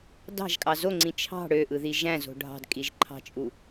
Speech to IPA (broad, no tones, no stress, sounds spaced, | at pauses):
d ɑ̤ ʒ kʼ ɑ z o ŋ͡ǀ ĩ t͡ʃʰ ɑ̤ ɽ ø ʔ ɯ ð i ʒ æ̃ z o̤ ɖʱ ɑ̤ d kʼ i ʒ ǃʰ ɑ̤ t͡ʃʼ u